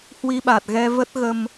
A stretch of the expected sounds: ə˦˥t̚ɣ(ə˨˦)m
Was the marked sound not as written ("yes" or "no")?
yes